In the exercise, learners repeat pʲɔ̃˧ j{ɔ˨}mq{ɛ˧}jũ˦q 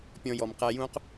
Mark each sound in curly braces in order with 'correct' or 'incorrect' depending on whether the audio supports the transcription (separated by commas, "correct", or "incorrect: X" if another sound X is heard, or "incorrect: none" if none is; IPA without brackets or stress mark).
correct, correct